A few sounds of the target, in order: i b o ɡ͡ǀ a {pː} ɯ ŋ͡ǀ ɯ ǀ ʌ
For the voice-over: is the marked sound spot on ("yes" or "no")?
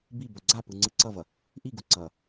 no